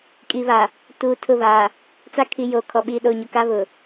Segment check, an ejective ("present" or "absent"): present